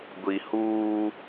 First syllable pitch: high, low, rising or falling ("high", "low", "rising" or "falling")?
low